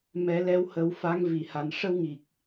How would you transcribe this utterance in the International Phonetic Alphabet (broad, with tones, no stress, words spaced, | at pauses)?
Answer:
mɛ˨˩˦lɛ˧˥whə˨˩˦w fa˧˥ŋ vi˨˩ha˨˩n ʂə˧wŋi˨˩k̚